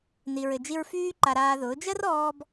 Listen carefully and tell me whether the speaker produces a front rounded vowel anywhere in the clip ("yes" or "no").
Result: yes